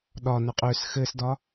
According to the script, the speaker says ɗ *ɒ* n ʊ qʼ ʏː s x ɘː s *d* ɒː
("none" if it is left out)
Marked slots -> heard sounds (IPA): ɒ, d

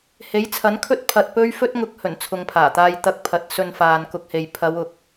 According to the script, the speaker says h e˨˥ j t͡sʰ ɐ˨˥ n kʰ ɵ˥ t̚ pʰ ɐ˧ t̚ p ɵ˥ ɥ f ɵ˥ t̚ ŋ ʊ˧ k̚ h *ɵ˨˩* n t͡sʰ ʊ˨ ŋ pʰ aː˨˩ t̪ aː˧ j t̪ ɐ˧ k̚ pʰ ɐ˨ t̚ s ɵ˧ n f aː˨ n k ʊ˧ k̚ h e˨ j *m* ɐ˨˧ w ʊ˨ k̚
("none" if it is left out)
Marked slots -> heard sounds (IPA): ɵ˨˩, pʰ

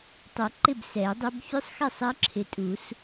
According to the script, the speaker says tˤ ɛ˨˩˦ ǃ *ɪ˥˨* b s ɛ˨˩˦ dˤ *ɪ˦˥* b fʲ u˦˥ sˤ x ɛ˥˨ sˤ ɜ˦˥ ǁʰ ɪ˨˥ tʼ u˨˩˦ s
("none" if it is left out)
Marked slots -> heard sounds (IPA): ɪ˥˨, ɪ˦˥

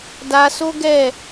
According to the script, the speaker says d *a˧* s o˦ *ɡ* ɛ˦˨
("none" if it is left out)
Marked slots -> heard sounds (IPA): a˧, ɡ

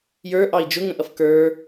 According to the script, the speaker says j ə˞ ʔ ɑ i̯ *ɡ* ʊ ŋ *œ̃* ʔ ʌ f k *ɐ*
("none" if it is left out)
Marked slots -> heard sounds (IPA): d͡ʒ, ə̃, ə˞

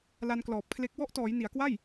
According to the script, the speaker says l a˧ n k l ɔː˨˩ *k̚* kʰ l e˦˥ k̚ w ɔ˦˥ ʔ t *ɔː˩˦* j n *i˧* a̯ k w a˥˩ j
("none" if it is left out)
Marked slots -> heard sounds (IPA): p̚, ɔː˩˦, i˩˦

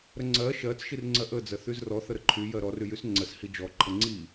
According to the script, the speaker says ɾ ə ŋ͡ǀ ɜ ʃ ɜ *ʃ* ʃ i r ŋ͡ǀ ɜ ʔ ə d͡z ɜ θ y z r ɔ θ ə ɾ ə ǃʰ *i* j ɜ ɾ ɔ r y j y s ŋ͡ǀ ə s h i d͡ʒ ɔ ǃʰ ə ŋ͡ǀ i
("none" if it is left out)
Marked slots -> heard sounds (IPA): t͡s, y

